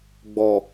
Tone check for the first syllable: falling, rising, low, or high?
low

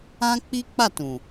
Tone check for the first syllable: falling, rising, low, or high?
high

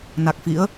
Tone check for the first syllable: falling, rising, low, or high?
low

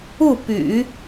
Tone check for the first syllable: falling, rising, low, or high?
falling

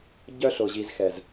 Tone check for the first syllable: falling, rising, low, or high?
high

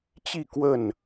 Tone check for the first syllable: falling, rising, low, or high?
falling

